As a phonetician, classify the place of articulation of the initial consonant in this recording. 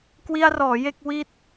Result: velar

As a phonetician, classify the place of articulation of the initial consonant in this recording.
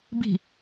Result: labial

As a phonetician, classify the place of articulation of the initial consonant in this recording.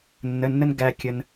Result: alveolar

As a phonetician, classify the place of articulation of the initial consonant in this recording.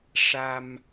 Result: retroflex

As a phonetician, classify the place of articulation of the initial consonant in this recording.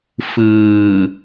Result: labial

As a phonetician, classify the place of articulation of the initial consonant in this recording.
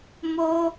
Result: labial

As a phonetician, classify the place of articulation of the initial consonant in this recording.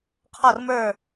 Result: uvular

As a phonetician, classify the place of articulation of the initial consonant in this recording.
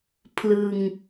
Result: labial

